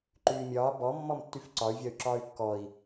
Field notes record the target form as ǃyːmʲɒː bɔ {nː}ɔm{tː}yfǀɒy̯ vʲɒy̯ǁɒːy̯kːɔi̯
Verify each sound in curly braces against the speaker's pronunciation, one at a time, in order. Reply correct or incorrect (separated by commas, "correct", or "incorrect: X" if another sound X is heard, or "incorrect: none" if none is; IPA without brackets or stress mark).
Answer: incorrect: mː, correct